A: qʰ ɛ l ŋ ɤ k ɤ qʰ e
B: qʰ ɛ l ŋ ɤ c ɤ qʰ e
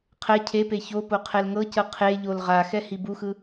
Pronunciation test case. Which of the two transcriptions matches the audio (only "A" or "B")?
B